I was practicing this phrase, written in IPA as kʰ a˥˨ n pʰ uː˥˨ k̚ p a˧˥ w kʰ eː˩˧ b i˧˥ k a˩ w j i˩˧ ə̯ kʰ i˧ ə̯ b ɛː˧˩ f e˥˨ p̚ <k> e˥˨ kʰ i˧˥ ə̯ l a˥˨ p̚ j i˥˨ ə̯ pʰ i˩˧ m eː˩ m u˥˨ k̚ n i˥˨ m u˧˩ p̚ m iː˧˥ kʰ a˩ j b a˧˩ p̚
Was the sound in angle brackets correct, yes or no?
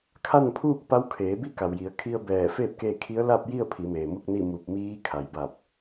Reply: yes